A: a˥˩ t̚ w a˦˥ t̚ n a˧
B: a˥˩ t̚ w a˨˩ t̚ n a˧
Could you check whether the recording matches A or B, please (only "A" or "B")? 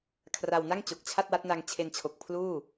A